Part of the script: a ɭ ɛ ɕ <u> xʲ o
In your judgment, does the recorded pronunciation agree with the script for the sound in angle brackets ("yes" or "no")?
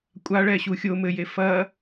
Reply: yes